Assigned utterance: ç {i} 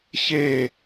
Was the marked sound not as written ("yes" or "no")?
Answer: yes